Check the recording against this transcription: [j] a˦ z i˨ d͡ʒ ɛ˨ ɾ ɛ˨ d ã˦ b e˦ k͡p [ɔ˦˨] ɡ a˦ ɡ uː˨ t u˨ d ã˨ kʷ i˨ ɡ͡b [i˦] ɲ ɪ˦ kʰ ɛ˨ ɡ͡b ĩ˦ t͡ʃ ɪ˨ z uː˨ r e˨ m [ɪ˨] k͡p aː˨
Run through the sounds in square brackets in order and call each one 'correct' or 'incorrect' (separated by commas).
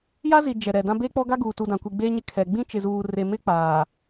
correct, incorrect, incorrect, incorrect